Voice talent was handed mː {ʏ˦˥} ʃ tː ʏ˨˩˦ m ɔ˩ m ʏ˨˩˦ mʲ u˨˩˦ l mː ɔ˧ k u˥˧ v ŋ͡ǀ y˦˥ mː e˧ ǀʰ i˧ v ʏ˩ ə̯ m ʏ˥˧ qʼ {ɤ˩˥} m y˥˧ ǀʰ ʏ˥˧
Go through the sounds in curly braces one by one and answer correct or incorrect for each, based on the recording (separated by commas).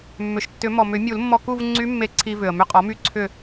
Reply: incorrect, incorrect